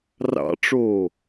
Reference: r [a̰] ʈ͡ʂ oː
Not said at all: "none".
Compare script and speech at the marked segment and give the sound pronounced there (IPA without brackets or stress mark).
ɑ̰